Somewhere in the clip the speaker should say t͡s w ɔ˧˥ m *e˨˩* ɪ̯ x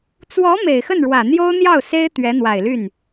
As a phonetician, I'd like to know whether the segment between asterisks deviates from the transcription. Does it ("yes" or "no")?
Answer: no